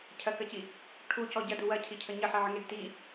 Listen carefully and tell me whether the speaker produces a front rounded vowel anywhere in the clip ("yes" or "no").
no